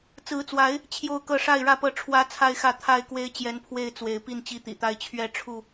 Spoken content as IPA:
t͡s ɹ̩˨˦ t͡s w a˨˦ ɪ̯ | t͡ɕʰ j o˥˨ ʊ̯ k ɤ˥˨ ʂ a˥˨ ɪ̯ ɻ ä˥˨ p ɤ˦ ʈ͡ʂʰ w ä˦ t͡sʰ a˥˨ ɪ̯ x ä˥˨ t̪ʰ a˥˨ ɪ̯ k w e˦ ɪ̯ t͡ɕ j ɛ˨˦ n pʰ w e˥˨ ɪ̯ t͡s w e˨˦ ɪ̯ p i˥˨ n t͡ɕ i˦ t̪ ḭ˨˩ t̪ a˦ ɪ̯ t͡ɕʰ ɥ ɛ˥˨ ʈ͡ʂʰ u˥˨

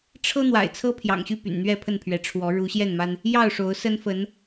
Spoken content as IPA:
ʈ͡ʂʰ ɤ˦ n̪ w a̰˨˩ ɪ̯ t͡sʰ ɤ˦ pʰ j ɑ̰˨˩ ŋ ɕ y˥˨ p y̰˨˩ n n̪ ɥ ɛ˥˨ pʰ ə˥˨ n pʰ ɥ ɛ˨˦ ʈ͡ʂʰ w ɔ˨˦ ɻ u˨˦ ɕ j ɛ˥˨ n m a˦ n | j ɑ˥˨ ʊ̯ ʂ o˨˦ ʊ̯ s ə˦ n f ə˨˦ n

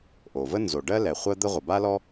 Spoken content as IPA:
ʔ o˩ v ə˥ n z o˩ ɖ ɜ˥ l ɛ˩ χʷ ɜ˥ d̪ ə˥ ʁʷ ə˩ b a˥ l ɔ˥

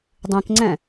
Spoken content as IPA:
dˤ ĩ k ŋ͡ǀ ɛ̃

